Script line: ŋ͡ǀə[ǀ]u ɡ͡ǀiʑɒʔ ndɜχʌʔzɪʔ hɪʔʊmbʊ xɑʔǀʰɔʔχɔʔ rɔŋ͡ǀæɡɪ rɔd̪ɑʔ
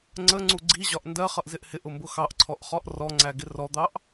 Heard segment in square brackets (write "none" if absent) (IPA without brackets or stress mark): ŋ͡ǀ